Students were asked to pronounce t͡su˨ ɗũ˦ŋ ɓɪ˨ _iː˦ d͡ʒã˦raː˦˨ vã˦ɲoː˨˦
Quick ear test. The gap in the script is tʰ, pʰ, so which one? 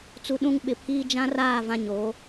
pʰ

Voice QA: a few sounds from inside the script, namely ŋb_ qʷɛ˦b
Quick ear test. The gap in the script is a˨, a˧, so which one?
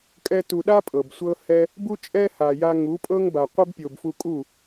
a˨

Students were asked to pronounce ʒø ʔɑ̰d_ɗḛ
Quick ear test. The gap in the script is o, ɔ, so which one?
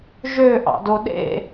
o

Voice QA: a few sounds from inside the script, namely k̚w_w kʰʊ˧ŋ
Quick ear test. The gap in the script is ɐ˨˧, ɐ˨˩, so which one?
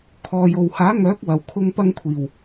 ɐ˨˩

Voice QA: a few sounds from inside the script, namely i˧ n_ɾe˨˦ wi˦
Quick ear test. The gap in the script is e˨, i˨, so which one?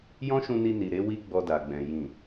i˨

